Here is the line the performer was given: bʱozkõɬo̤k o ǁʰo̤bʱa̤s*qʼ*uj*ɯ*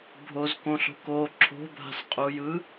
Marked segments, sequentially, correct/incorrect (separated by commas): correct, correct